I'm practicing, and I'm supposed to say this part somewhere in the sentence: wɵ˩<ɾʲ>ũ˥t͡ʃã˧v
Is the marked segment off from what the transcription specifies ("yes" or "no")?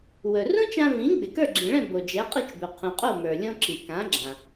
yes